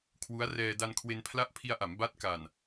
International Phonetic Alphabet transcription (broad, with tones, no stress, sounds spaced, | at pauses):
kʰ w u˦˥ a̯ r ɛː˧ d a˧ n kʰ w e˧ n pʰ l a˦˥ ʔ pʰ i˧ a̯ ʔ a˩˦ m b a˦˥ t̚ k a˨˩ n